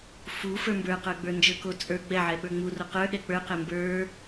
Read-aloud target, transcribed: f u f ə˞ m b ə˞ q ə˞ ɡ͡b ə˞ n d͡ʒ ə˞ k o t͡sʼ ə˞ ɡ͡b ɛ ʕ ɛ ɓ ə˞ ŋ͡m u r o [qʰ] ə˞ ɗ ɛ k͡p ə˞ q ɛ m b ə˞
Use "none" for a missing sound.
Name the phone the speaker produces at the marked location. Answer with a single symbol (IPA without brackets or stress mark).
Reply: q